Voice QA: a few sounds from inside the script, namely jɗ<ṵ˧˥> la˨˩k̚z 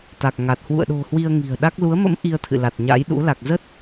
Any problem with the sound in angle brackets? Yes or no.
no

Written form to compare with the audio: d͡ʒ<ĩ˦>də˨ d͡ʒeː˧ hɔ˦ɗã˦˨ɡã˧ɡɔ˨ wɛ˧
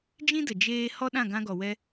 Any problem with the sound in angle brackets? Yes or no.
no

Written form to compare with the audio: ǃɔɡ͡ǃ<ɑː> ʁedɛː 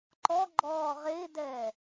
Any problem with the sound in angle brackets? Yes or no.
yes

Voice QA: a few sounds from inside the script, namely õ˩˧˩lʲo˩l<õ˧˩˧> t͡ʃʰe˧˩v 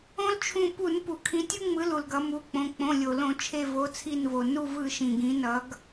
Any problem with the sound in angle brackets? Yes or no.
no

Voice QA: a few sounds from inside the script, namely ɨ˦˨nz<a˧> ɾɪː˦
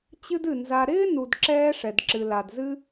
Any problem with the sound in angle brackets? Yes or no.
no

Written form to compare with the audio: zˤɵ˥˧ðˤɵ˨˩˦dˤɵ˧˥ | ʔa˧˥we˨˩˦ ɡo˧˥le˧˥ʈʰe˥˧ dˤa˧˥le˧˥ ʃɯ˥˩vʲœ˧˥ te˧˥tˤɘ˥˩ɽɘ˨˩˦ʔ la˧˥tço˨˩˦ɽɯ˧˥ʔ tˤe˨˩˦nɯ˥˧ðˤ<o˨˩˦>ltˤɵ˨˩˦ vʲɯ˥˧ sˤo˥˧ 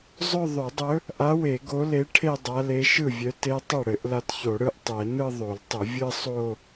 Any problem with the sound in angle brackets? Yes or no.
no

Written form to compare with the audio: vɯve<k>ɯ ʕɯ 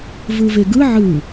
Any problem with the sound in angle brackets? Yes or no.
yes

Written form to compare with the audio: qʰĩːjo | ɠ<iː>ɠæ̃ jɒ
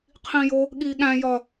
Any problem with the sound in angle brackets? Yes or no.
no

